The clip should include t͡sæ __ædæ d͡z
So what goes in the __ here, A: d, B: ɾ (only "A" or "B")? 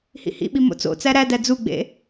B